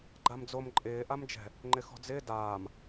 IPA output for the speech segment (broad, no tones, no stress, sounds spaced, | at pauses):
ɡ͡ǃ a m d͡z o m ǃʼ ɪː ʔ a m d͡ʒ ɛ̤ | ŋ͡ǃ ɪ x ɔ̤ d͡z ɪː d aː m